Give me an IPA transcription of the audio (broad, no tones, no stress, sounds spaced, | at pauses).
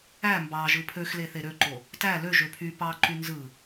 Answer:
æ m b ɑ ʒ ɯ pʰ ø x l e θ e ɾ ø ǃ o | t æ l ø ʒ ø pʰ y p ɑ ǃ y n z ɯ